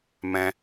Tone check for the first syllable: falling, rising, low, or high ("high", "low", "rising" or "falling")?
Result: low